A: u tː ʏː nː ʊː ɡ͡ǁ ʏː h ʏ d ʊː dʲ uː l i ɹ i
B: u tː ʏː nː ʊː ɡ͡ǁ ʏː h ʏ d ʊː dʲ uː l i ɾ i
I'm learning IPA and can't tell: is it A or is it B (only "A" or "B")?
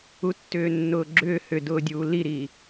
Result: B